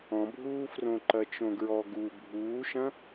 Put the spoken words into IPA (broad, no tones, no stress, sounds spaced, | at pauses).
ɔ̃ bʱ uː f r õ ǃ ɐ t͡ʃ õ ɡ ɹ ɔ ɡ u bʱ uː ʃ ɐ̃